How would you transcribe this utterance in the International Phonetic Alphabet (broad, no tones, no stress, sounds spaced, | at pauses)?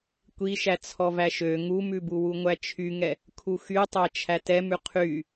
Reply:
kʷ i ʃ æ t͡sʰ ɔ v æ ʃ ø ŋ u m ʉ b u w u ŋʷ æ t͡ʃʰ y ŋ ɛ | kʰ u x y tˤ æ t͡ʃʰ æ t ɛ m ʉ qʰ y